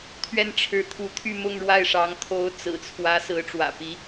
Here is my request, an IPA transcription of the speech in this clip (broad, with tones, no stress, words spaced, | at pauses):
t̪ʰɥɛ˥˩nʈ͡ʂʰɻ̩˧˥t̪ʰu˧˥ t̪ʰy˥˧mʊ˥˧ŋɻwa˥˩ɪ̯ʂɑ˧˥ŋ t̪ʰo˧˥ʊ̯t͡sɹ̩˨˩t͡sʰwä˧˥ sɹ̩˧˥ʈ͡ʂwä̰˨˩pi˧˥